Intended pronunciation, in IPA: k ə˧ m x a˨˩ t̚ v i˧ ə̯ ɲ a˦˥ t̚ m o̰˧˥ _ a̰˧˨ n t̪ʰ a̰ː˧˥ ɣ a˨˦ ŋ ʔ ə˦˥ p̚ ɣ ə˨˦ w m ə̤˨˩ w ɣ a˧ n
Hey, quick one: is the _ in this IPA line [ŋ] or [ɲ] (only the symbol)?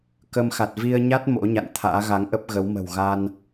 ɲ